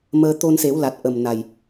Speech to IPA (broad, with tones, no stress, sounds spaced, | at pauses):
m əː˧ t̪ o˧ n s e˨˩˦ w l a˨˩ t̚ ʔ ə˨˩ m n a˨˩ j